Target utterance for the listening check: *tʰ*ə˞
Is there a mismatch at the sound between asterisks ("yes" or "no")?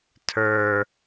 no